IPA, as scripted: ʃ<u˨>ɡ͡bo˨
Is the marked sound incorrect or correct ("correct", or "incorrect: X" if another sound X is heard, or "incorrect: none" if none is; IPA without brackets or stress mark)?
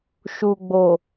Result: correct